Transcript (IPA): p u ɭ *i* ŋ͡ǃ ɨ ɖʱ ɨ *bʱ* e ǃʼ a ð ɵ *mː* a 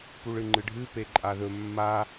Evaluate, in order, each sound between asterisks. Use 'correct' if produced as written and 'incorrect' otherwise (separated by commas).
incorrect, incorrect, correct